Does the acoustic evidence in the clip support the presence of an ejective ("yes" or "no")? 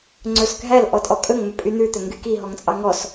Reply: yes